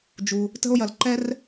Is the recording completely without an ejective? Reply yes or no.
yes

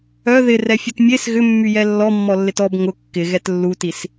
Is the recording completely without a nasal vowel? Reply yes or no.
yes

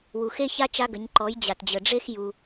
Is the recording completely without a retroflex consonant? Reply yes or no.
no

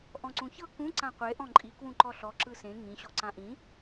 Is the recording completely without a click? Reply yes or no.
no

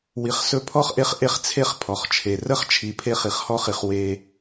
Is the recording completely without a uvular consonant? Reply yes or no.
no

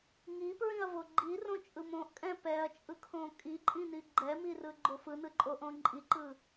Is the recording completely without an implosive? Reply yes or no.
yes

